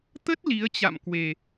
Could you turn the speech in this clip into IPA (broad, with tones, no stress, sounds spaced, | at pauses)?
t̪ ə˦˥ t̚ l i˨˦ ə̯ t͡ɕ a̰˧˨ m k w e˨˩